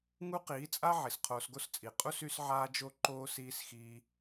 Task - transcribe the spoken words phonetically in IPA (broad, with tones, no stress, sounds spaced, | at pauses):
ŋ u˦ q iː˨˦ t͡sʼ a˦ ʕ i˨ s qʰ oː˧ s ɡ o˦ s t͡sʼ i˨ qʼ u˦ s y˦ s ʕ aː˦ d͡ʒ o˦ ǃ oː˦ s iː˧ s x iː˧